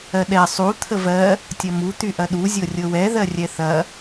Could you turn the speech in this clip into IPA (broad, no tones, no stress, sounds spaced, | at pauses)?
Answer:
ɜ ɗ ɛ sˤ u t̪ʰ ə v ɜ | tʲ ɐ m u t̪ y ʔ ɐ ɗ u zʲ ɤ rʲ ɤ w ɛ ð ɜ rʲ ɛ θ ɐ